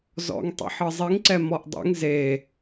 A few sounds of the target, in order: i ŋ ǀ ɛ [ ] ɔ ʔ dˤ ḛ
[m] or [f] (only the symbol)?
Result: m